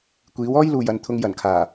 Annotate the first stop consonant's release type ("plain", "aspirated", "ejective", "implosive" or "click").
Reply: plain